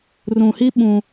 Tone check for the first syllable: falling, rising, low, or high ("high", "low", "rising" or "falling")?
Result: low